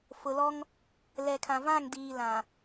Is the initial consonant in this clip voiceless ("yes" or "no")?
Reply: yes